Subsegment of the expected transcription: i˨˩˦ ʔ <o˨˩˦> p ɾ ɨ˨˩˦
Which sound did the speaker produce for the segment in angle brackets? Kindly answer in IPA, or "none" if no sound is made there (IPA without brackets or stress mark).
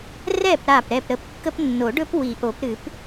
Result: o˨˩˦